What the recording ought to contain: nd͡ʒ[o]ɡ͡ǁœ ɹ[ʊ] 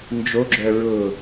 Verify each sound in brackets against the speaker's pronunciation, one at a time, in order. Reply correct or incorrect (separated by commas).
correct, correct